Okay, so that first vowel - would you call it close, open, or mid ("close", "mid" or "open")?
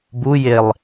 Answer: close